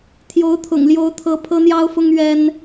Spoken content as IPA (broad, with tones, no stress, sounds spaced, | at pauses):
t̪ʰ j o˧˥ ʊ̯ t̪ʰ ʊ̰˨˩ ŋ l j o˧˥ ʊ̯ t̪ʰ ɤ˧˥ pʰ ɤ˥ n̪ j ɑ˥ ʊ̯ f ʊ˥ ŋ ɥ ɛ˥ n